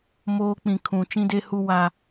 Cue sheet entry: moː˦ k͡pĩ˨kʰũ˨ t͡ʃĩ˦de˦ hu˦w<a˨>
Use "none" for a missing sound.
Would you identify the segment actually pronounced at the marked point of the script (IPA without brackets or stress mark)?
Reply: a˦